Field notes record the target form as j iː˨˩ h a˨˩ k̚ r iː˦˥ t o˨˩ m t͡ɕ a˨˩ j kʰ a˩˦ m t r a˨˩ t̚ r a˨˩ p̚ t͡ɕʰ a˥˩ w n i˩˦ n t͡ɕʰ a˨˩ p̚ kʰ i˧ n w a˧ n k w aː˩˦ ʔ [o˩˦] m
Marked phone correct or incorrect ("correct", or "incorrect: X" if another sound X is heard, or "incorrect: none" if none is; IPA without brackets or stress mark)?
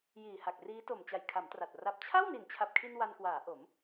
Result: correct